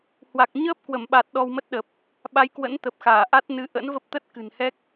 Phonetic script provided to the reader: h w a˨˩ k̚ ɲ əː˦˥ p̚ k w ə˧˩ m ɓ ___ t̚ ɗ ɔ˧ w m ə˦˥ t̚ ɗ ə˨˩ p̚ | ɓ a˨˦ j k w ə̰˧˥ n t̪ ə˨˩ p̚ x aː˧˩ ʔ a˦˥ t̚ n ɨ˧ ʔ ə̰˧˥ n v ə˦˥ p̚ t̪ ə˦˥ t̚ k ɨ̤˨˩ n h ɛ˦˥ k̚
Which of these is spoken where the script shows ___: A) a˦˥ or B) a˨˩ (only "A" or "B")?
B